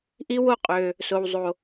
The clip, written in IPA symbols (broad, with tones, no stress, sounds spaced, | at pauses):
ʔ i˥ w o˦ qʼ ø˨ | s o˨ w zˤ o˨